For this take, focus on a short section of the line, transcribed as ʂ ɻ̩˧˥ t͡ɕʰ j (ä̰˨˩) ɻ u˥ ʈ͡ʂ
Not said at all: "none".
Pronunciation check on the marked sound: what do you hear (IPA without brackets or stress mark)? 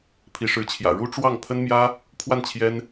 ä̰˨˩